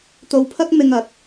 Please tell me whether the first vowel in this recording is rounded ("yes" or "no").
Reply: yes